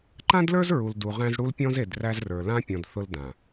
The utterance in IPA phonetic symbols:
ǃ ã˦ d l ə˞˦ z ɹ u˨ l d u˨ ʁ æ̃˦ z ɽ u˦ l pʲ ɔ̃˦ z e˨ d r æ˦ z r ə˞˨ l ã˦ pʲ ɔ̃˨ d θ ʊ˦ l d ã˨

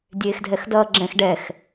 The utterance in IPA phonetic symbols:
dʲ eː x dʱ ɛ x d ʌː ɡ͡ǁ ɛ̃ x ɖ ɛ x

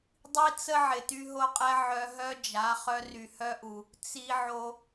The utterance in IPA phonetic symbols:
dˤ i˦ t͡s ə˦ ʕ ɪ˨ t y˧ ɦ o˧ qʼ ɛ˧ ʕ œ˧ ɦ œ˦ d͡ʒ a˨˦ χ œ˧ r y˨ h œ˧ ʔ u˨ | t͡s i˧ ʕ o˧

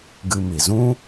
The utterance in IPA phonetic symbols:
ɡ ɨ˧ m i˨ z ũ˦

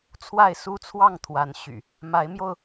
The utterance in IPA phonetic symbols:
t͡sʰ w a˥˨ ɪ̯ s u˦ t͡sʰ w ɑ˥˨ ŋ t̪ʰ w a˨˦ n ɕ y̰˨˩ | m a˨˦ ɪ̯ m j o˧ ʊ̯

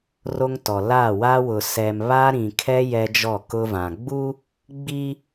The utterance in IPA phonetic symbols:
r o˦ ŋ t ɔ˨ l aː˦˨ w a˦ w ʊ˨ s ɛ˨ m β a˦ ɾ ĩ˨ kʰ ɛ˦ j ɛ˦ d͡ʒ ɔ˦˨ k ʊ˦ v ã˨ ɡ͡b u˦ | ɡ͡b i˦

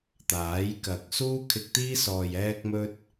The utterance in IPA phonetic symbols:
t̪ aː˨˥ j k ɐ˨ k̚ s uː˥ kʰ ɪ˧ k̚ t̪ iː˥ s ɔː˨ j ɛː˥ k̚ m ɵ˥ t̚

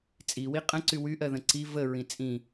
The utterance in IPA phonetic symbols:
t͡sʼ i w i qʼ ə̃ ǀ y w y ʔ ɜ ð ə̃ ǀ i v ə ɹ ĩ t͡sʼ ĩ

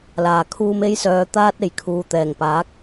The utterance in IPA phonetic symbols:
l aː˨˩ kʰ uː˧ m e˧ j s œː˨ t̪ aː˧ t̚ e˨˩ j kʰ uː˨ t̪ ɛː˨˩ ŋ p aː˨˥ k̚

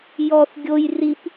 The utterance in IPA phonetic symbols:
j ɔ θ ɡʲ o j r i p

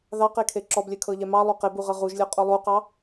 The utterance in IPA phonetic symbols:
ð ɑ q e kʰ e ǁ ɔ b lʲ ɛ kʰ ɤ ʎ ɛ m ɑ lˠ u q e b u ʁ ɤ ʁ u ʒ lʲ ɒ qʼ o lˠ u q ɑ

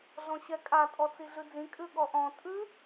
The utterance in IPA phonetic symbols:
ɮ ɔ̃ ɕ ɛ kʼ a tʼ ɔ t͡s i ɮ ʉ d͡z ĩ kʼ ʉ ɠ ɔ ʔ ɔ̃ tʼ ʉ

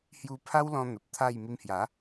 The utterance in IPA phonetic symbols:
h j u˧ pʰ a˦ w l ɔ̃˧ n̪ ə˨ p̚ t̪ʰ a˥˧ j m i˧ m h j a˨˦

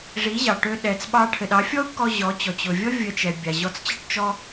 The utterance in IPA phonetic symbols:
ʐ i˨˦ ʑ ɑ˨ ʈ ø˧ ɗ ɛ˨ t͡s ɓ ɑ˧ ʈʰ ɘ˨ ɗ ɑ˨˦ fʲ ɔ˦ u̯ kː ɔ˧ ʑ ɔ˨˦ t͡ɕ ɔ˨ t͡ɕ ʊ˨ vʲ ɔ˦ vʲ ə˧ t͡ʃ ɛ˨ bʲ a˨ ʑ ɔ˧ t͡s t͡ɕ ə˦ ʈ t͡ʃ ɔ˦

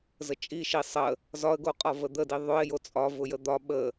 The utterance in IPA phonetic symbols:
z ə t͡ʃʼ i ʃ i sˤ ə | z ɒ ə̯ ɡ o qʼ ɒ v ə d̪ ə d i ðˤ ʊ ɪ̯ j o t͡sʼ ɒ v ʊ j ə d̪ ɒ ɓ ə

